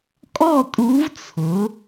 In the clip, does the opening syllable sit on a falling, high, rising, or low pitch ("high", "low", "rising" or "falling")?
falling